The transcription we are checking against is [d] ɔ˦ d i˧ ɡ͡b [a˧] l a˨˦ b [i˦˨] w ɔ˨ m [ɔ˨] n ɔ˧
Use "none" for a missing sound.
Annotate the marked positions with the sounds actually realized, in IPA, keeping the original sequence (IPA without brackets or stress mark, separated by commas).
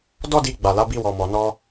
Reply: d, a˨, i˧, ɔ˨